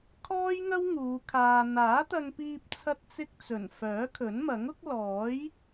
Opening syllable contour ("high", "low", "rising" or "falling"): high